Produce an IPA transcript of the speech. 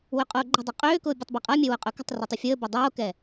w ʏ qʼ oː ɡ͡ǃ ə̤ dˤ u qʼ øː k ʊː bʲ ɛ tˤ b ɛ qʼ a mʲ ɛ w ʊ qʼ ɵ k ə̤ tˤ r ɵ tˤ ʏ fʲ əː b ʏ dˤ oː k ɛ

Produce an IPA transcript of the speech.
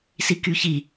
s i k y ç i

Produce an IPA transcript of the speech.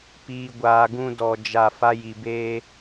p iː˧ ɡʷ aː˧ ɡ ũ˦ d ɔ˧ d͡ʒ a˦˨ f a˦ j i˧ b eː˦

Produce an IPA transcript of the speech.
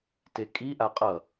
t e kʼ i ʔ a qʼ ʌ

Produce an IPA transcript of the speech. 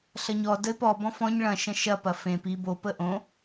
ɬ ɐ ɲ ɔ d ə ɪ̯ p ɔ b ɔ̃ f ɔ̃ ɲ ɭ ɐ̃ ʃ ɐ̃ ʃ ɐ p ɐ f ẽ p i b o p ə ʔ õ

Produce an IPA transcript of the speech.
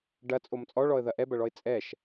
ɖ ɐ t͡sʼ o m t͡sʼ ɔ ɭ ɔ ə̯ ð ɐ ʔ ɛ b ɐ ɭ ɔ ɪ̯ t͡sʼ ɛ ʃ

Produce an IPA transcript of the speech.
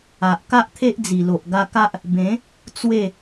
a˨ ʔ k a˦ ʔ t̪ʰ e˦ ʔ d͡z i˨˩ l o˨ ʔ ɡ a˧ k a˦ ʔ | b ẽ˨˦ | t͡s w e˥˧

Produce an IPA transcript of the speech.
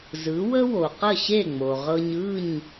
z ɯ˩˥ w ə˥ w o˩ q ə˥˩ ɕ e˥˩ ŋ͡m o˩ ʁ ɤ˧ ɲ ɯ˥˩ ɲ

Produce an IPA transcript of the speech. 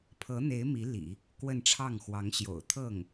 pʰ ɤ˧˥ n̪ e˧˥ ɪ̯ m i˧˥ l ḭ˨˩˦ | k w ə˥˧ n ʈ͡ʂʰ ɑ˥˩ ŋ x w ɑ˧˥ ŋ ɕ j o̰˨˩ ʊ̯ t̪ʰ ɤ˥˩ ŋ

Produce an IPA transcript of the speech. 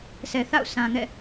s ɛ˨ θ a̰˦˨ ʊ̯ s ã˨ ŋ ɛ̰˦˨

